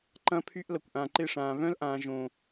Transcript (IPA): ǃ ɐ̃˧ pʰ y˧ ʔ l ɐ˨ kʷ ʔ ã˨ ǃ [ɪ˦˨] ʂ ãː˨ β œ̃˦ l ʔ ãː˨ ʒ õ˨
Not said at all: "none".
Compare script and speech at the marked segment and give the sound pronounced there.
ɪ˦˨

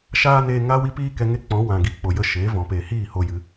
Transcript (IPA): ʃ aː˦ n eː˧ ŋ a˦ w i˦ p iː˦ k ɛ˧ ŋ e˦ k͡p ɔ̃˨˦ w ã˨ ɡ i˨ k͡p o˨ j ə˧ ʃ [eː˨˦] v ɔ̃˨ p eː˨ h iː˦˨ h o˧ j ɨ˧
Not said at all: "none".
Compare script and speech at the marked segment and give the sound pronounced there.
eː˨˦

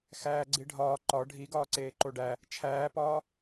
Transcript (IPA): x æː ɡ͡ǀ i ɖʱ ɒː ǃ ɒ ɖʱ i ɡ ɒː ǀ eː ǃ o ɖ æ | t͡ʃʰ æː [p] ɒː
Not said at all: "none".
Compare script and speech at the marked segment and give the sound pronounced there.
p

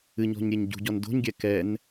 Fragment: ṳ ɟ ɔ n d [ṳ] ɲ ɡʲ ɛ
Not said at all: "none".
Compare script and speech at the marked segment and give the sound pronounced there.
o̤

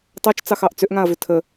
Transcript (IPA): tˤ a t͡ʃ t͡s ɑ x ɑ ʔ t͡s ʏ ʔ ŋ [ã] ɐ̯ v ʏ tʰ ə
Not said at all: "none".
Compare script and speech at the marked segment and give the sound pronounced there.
ã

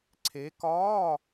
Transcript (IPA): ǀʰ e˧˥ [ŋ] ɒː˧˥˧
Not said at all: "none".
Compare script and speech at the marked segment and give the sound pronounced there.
k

